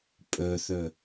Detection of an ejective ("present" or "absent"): present